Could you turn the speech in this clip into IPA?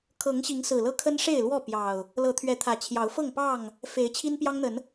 kʰɤ˨˦ŋɕi˨˦ŋsɹ̩˨˩lɤ˦ kʰə˦nʂe˥˨ɪ̯lwɔ˥˨ pjɑ˨˩ʊ̯ | lɤ˨˦t̪ʰɥɛ˨˦t̪ʰä˨˩t͡ɕʰjɑ˨˦ʊ̯ fɤ˥˨ŋpɑ˥˨ŋ | fe˨˦ɪ̯t͡ɕʰi˦n pjɑ˦ŋn̪ə˨˦n

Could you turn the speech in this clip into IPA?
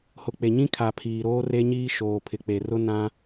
hʊ˨k͡pe˨ɲĩ˦kʰa˨ pʰiː˨ɾoː˦re˦ɲiː˦ ʃoː˨pʰɪ˨k͡pe˨rʊ˦ nã˦

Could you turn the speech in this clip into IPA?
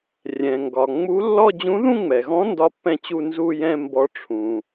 rʲɛ̃˩ŋɡɒ˩ ŋ͡mu˧˥lːɔ˥˧ d͡ʑũ˧˥ðũ˥˧ŋ͡mɛ˩ɣɔ̃˧˥ ndɒ˥˧pːɛ̃˥˧t͡ɕu˥˧ nzu˥˧jɛ̃˥˧ mbɔ˧˥ʈ͡ʂʰũ˩

